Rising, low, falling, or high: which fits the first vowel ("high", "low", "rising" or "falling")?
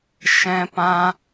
high